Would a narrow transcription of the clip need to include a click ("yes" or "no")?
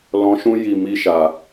no